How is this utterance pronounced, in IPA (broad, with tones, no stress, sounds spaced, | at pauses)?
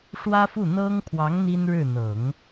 ʂ w ä˥ f u˥˩ n̪ ɤ˥ ŋ pʰ w ɑ˧˥ ŋ n̪ i˥ n ɻ ɻ̩˥˩ n̪ ɤ˨˩˦ ŋ